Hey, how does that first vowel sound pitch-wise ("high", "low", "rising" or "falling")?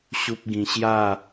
high